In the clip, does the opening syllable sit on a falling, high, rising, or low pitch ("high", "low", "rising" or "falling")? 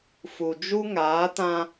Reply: low